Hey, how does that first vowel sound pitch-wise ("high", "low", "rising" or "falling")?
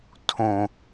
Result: low